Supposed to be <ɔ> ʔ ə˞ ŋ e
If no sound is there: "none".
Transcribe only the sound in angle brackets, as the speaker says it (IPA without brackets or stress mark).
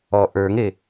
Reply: ɔ